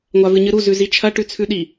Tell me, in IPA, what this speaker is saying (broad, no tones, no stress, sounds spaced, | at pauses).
ŋʷ a v ɨ ɲ ɨ ɾ u z ʉ z i t͡ʃʰ ɐ ʈ ʉ t͡sʰ ʉ ɗ i